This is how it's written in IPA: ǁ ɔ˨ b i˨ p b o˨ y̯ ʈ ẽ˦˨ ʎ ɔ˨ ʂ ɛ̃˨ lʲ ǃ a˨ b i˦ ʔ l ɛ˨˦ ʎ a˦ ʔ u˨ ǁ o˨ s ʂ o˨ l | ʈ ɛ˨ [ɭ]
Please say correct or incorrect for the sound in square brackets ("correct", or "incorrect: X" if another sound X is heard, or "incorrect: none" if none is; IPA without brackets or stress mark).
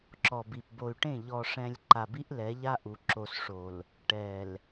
incorrect: l